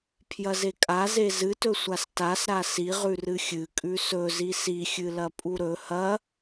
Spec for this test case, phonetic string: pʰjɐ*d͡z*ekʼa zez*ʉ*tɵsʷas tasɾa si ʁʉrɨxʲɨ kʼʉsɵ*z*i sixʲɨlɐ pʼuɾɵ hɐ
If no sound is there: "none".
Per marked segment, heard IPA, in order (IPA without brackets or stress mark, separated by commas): z, ɨ, z